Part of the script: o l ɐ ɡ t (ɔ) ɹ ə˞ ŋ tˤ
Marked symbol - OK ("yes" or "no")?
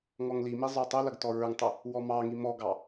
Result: yes